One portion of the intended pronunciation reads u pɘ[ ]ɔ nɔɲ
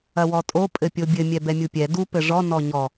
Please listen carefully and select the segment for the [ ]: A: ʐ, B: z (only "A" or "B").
A